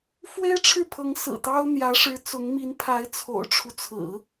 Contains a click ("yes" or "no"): no